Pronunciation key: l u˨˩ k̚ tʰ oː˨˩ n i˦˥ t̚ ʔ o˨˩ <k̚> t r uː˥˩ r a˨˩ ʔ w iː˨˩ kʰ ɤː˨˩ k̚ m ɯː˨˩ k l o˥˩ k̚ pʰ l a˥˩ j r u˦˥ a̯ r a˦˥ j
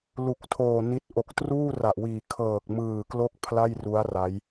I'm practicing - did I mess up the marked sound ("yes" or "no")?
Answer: no